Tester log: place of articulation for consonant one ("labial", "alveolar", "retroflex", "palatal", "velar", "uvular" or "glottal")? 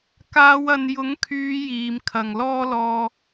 velar